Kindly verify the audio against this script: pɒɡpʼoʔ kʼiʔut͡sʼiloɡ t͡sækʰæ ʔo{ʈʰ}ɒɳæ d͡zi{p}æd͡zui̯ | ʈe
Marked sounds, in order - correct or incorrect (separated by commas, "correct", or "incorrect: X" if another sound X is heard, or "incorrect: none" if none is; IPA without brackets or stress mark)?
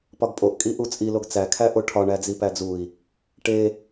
correct, correct